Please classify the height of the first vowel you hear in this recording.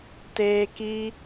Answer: mid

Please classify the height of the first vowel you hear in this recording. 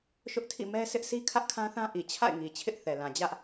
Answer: high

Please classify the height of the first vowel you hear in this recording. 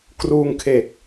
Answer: high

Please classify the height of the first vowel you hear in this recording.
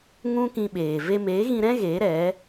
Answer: high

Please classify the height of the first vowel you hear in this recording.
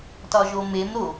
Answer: low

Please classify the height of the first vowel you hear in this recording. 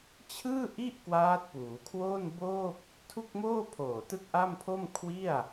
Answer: high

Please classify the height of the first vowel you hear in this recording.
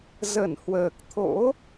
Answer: mid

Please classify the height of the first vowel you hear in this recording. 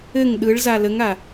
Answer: mid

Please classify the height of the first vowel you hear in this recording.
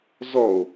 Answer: mid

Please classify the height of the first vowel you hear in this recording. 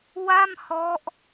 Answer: low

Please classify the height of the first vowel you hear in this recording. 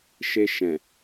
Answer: mid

